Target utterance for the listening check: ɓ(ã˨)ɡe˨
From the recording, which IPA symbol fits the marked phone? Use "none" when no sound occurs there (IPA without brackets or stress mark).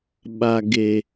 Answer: a˨